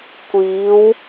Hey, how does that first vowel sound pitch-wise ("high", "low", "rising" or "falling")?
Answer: rising